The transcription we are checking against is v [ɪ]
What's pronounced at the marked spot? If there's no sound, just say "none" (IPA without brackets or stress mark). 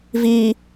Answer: i